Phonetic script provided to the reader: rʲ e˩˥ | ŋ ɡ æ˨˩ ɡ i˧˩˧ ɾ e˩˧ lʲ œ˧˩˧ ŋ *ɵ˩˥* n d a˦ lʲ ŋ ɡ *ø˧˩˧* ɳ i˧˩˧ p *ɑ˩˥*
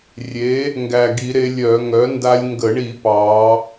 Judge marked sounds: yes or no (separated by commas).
no, no, no